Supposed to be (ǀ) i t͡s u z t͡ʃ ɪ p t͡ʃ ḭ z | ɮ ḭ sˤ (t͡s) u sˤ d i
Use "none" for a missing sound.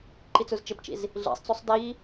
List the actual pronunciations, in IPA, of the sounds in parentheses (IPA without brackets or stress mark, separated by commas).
ǃ, t͡s